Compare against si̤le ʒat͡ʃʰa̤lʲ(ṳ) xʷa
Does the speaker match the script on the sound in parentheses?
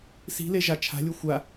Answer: no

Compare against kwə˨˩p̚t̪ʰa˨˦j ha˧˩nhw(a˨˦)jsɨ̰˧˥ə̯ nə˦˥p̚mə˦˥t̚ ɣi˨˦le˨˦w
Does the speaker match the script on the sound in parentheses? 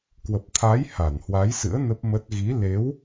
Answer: yes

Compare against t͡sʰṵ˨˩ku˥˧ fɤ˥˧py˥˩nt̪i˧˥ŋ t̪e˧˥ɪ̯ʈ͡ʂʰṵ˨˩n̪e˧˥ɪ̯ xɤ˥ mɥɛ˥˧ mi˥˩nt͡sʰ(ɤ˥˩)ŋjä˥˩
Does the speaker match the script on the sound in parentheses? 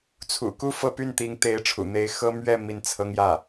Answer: no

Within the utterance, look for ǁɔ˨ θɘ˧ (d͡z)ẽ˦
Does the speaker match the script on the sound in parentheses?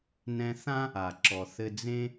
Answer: yes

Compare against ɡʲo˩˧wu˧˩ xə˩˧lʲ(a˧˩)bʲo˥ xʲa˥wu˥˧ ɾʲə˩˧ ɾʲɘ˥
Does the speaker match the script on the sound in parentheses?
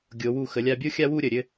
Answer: no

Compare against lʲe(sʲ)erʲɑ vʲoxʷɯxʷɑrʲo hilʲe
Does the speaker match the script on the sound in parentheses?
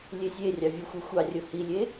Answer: no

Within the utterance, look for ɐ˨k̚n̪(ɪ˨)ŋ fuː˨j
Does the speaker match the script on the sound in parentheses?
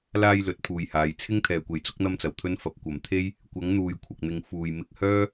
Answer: yes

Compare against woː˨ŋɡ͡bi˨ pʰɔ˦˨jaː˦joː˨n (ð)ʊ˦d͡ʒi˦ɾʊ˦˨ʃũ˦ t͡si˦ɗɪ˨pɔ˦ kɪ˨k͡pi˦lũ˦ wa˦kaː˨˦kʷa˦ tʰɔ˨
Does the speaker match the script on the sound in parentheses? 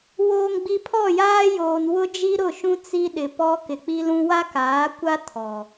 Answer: no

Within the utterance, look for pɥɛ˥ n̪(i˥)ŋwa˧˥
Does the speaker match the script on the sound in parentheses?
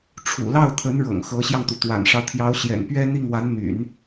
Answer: no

